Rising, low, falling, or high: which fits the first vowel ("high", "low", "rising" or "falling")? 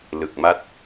low